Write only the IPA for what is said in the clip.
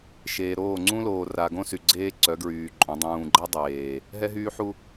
ʃ eː˨ ɾ oː˦˨ ŋ͡ǀ ũ˦ l oː˨ r a˨ ɡ õ˦ s y˨ ɡ͡ǀ eː˦ ǀ œ˨˦ ɡ ɹ yː˨ ǃʼ õ˨˦ dˤ ũː˨ ɡ͡ǃ ɛ˦ dˤ eː˨ | ɦ ɛ˦ ɦ yː˦ ħ u˦

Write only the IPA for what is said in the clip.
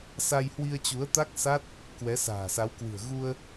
s a˧ j h w i˧ ə̯ t͡ɕ u˨˦ ə̯ t̪ a˦˥ k̚ s a˦˥ t̚ | k w ɛ˨˦ s a̤ː˨˩ s a˨˦ w k w ɨ̤˨˩ ə̯ ɣ u˧ ə̯

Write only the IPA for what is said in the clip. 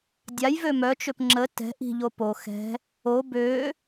dʲ a j v ø m œ t͡ʃ ø p ŋ͡ǁ ə t ɛ̤ ʔ i̤ ʎ o p o x ɛ̤ | o b ø

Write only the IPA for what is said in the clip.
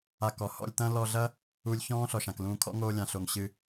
a˧ k ɔ˨ h ɔ̰˧ lʲ t̪ ɐ̃˦ l ɔ˧ ɮ ɐ˦ | u˧ lʲ ç ɔ̃ː˦ ɬ ɔ˨ ʃ ã˨ k l ũː˧ kʰ ɔ̰˦ ŋ oː˧ lʲ ã˨ ɬ o˨ ŋ ɕ ɨ˧

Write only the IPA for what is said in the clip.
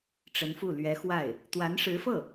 ʈ͡ʂ ə˧˥ n f u˥˩ l ɥ ɛ˧˥ x w a˥˩ ɪ̯ | t̪ w a˧˥ n ʂ ɻ̩˧˥ f ɤ˥˩

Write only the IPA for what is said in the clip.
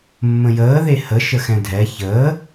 mː ə̃ j əː ð e h ə ʃ ə x ɛ̃ dʱ ɛ ç əː

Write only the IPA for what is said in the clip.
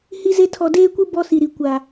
h i˦ z e˦ tʰ ɔ˨ d eː˦ kʷ i˦ b ɔ˦ s i˨ ɾ i˨ kʷ a˨

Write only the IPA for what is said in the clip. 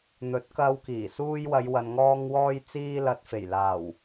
n̪ ɵ˨˥ t̚ k ɐ˧ w k iː˨˩ s uː˧ j w ɐ˨˧ j w ɐ˨ n ŋ ɔː˧ ŋ w ɔː˧ j t͡s iː˧ l ɐ˨ t̚ f e˨˩ j l aː˨˩ w

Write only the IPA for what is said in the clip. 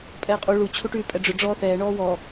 pʼ ɛː qʼ u ɭ u t͡ɕʰ u ʈ yː pʼ ɛ ɖ͡ʐ ʏ ɖ͡ʐ ɔː θ ɛː ɳ ɔː w ɔ

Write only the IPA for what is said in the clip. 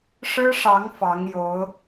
ʂ ɻ̩˥ ʂ ɑ˧˥ ŋ f ɑ˧˥ ŋ j o˧˥ ʊ̯

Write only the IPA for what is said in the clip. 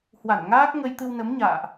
h w a˧˩ n ŋ aː˦˥ k̚ ŋ ə˧ j t̪ ɨ˧ w n ə˨˦ m ɲ a̰ː˧˨ ʔ

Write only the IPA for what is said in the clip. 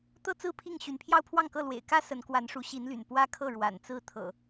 t̪ ɤ˦ t͡s ɹ̩˥˨ pʰ i˥˨ ŋ ɕ y˨˦ n pʰ j ɑ˦ ʊ̯ pʰ w ɑ˥˨ ŋ k ɤ˥˨ l w ḛ˨˩ ɪ̯ k ä˦ s ə˨˦ n k w a˨˦ n ʂ u˨˦ ɕ i˨˦ n l y̰˨˩ n p w ä˦ kʰ ɤ˥˨ ɻ w a̰˨˩ n t͡s ɹ̩˥˨ t̪ʰ ɤ̰˨˩

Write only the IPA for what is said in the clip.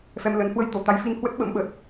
f ɛ˧ m l ə˨˦ n h w ə˨˦ j t̪ o˧˩ t̪ a˨˦ j f i˧ n h w ə˦˥ t̚ ɓ ə̰˧˥ m ɓ ə˨˩ t̚

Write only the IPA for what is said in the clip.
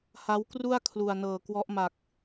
h a˦˥ w k r u˥˩ a̯ kʰ l u˨˩ a̯ n ɤː˨˩ k w ɔ˦˥ ʔ m a˨˩ k̚

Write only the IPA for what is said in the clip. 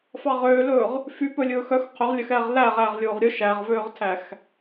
f ɑ ʁ øː l ɵː ʁ | f y p ɵ lʲ ɵː x œ x qʰ ɵ ʁ lʲ œ x ɛː ʁ l æ ʁ æː ʁ lʲ oː ʁ ɾʲ ɵ ʃ æ ʁ v øː ʁ tʰ æ x

